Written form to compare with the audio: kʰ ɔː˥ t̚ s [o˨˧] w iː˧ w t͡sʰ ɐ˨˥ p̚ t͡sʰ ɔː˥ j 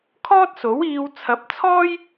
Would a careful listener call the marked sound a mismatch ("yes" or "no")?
yes